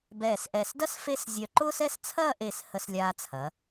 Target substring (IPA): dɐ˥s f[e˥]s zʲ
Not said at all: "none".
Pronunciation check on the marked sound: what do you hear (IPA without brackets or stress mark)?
e˥